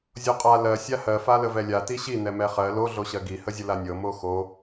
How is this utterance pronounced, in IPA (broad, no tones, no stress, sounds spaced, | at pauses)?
zʲ o qʼ a l ɜ sʲ a h ɜ f a l ə v ɛ lʲ a t i ɕ i n ɛ m ɛ χ ɜ l o ɮ o ɕ ɜ ɡ i h ə zʲ ə l a nʲ ɤ m o x o